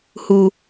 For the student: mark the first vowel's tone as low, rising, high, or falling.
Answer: low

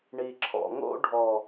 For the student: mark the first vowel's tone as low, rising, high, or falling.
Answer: low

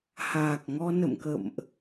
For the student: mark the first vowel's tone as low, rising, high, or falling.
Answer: low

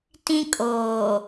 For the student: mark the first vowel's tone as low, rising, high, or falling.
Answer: high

